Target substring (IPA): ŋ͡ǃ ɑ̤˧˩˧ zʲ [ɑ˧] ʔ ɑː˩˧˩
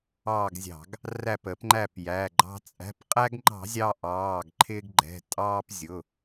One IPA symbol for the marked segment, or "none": ɑ˧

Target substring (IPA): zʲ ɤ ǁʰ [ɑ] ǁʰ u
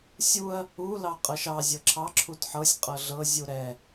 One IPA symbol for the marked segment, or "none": ɑ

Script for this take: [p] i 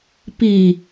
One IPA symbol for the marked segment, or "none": p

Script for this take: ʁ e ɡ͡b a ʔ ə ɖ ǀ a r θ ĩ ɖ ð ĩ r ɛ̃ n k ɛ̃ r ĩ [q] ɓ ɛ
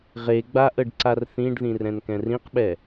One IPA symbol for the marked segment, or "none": q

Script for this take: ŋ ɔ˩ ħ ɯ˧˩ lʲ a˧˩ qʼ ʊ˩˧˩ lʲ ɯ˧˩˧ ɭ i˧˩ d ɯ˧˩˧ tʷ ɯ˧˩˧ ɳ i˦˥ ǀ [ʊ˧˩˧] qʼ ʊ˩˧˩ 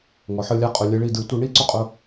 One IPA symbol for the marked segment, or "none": ʊ˧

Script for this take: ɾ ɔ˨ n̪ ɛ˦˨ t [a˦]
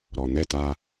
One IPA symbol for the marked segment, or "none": a˦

